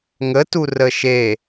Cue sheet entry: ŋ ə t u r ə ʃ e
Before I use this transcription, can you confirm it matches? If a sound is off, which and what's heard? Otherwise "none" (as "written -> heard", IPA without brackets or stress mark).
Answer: none